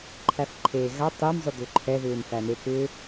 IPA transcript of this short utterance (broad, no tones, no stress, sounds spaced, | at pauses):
ǃʰ æ f ǃʰ eː ɣ a tˤ e m zˤ ʏ d̪ ʏ ǃʰ ɛ ð ʏː m f æ n̪ e k ʏ